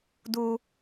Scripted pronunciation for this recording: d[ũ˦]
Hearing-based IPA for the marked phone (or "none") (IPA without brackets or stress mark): u˦